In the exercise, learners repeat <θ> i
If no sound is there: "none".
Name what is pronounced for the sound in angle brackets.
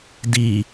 d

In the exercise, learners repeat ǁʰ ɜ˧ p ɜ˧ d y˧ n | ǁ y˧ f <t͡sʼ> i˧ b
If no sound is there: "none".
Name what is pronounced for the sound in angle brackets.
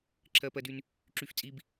t͡sʼ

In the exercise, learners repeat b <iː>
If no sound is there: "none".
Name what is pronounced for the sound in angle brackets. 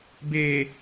eː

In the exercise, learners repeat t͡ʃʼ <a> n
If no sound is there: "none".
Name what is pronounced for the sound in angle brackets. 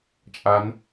a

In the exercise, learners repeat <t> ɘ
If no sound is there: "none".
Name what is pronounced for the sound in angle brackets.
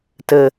t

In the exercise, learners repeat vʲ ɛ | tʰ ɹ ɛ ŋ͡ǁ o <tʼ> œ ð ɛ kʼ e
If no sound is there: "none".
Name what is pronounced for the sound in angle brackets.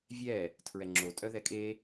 tʼ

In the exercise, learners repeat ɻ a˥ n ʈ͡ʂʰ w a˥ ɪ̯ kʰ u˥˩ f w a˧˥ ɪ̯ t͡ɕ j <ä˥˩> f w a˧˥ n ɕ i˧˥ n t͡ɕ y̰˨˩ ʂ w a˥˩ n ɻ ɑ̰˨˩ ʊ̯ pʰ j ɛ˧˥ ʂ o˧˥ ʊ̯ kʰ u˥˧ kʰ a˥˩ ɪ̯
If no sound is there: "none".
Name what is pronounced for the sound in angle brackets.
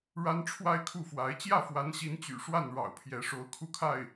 ä˥˩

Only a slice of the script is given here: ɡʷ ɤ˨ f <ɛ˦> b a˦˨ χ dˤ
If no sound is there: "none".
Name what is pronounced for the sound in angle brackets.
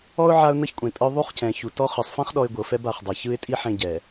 ɛ˦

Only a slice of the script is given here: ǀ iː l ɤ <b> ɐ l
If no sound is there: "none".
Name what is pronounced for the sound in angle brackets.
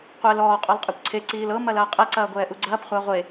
m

